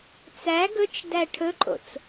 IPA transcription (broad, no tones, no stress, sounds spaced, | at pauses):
t͡s æ ɡ ɵ t͡ʃ d æ ʈʰ ɵ ǃʼ o̰ t͡s